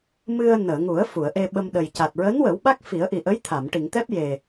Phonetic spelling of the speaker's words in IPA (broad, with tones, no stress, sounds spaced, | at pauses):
m ɨ˧ ə̯ n əː˨˩˨ ŋ u˨˩˦ ə̯ f u˨˩˨ ə̯ ʔ e˧ ɓ ə˧ m ɗ ə˨˩ j c a˨˩ t̚ ɹ əː˧˥ n w ə˨˩˦ w ɓ a˦˥ k̚ f i˨˩˦ ə̯ ʔ i˨˩ ʔ ə˧˥ j t̪ʰ a˨˩˨ m ʈ i˨˩˨ ŋ t̪ ɛ˦˥ p̚ j e˨˩